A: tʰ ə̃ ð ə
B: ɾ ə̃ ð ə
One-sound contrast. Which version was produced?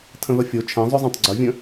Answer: A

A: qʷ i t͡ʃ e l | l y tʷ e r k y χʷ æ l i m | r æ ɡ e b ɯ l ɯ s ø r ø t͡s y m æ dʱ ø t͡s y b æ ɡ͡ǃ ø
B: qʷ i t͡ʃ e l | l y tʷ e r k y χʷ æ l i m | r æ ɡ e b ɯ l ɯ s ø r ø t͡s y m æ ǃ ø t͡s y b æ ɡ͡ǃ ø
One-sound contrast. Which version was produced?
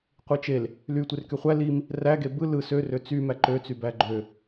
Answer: B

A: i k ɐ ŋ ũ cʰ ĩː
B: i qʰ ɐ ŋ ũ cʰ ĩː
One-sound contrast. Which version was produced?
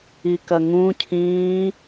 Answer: A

